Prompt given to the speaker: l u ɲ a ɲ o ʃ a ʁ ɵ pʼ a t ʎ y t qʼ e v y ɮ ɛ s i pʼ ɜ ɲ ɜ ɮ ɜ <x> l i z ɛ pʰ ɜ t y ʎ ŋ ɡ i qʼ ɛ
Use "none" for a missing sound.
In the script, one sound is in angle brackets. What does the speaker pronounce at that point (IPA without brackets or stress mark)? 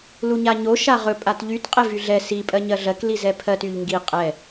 k